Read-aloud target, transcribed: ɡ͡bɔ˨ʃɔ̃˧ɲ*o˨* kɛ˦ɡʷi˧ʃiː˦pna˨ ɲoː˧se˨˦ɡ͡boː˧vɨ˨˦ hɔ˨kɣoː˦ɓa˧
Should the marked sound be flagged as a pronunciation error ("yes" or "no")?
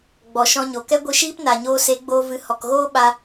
no